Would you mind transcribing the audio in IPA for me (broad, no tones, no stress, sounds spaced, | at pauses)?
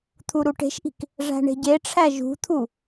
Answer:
t̪ʰ u ɾ u ʈ e̤ ʃ ʔ i̤ k | ʐ æ̤ ɳ e̤ ɟ e ʈ͡ʂʰ æ ʒ ṳ t̪ʰ u